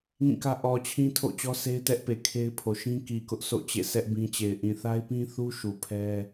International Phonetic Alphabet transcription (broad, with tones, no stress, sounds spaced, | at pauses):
ŋ ĩ˦˨ k ä˦ ʔ ɔ˨ t͡ɕʰ ĩ˦ tʰ o̰˦˨ t͡ɕ ɔ˦ sʰ e˦ ɪ̯ t ɛ˦ ʔ p e˨ kʰ e˦ ɪ̯ pʰ o˨ ʃ ĩ˦ k i˨ k ʊ˦ ʔ s o̰˦˨ t͡ɕ ḛ˦˨ sʰ ɛ˦ ʔ b ĩ˦ t͡ɕ e˨ ɪ̯ ʔ ĩ˨ θ a˦ ɪ̯ p ĩ˦ θ u˦ ʃ u˨ pʰ ɛ˦